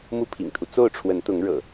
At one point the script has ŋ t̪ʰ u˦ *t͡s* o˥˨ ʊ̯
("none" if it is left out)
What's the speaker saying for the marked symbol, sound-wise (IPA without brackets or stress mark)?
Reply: t͡s